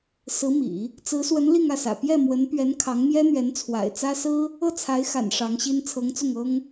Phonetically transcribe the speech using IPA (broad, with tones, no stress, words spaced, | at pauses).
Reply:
sɹ̩˧˥mḭ˨˩˦ | t͡sɹ̩˧˥swə˧˥n li˥˧ŋä˥˩sä̰˨˩ pjɛ˥˩mwə˧˥npɥɛ˧˥n kʰɑ˧˥ŋmjɛ˥n̪ɥɛ˧˥n t͡sʰwa̰˨˩ɪ̯t͡sä˥ sɹ̩˥ | ɤ˥˩t͡sʰa˧˥ɪ̯xa̰˨˩n ʂɑ˧˥ŋɕi˥n t͡sʰɤ˧˥ŋt͡sʊ˥˩ŋɤ˥ŋ